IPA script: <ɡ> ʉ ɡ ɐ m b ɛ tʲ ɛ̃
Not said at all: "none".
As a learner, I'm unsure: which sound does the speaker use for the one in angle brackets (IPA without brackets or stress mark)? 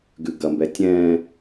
ɡ